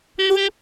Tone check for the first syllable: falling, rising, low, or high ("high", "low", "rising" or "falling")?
high